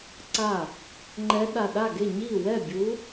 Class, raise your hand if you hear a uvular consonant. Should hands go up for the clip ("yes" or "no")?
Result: no